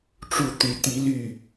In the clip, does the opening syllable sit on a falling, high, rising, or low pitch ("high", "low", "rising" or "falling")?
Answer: falling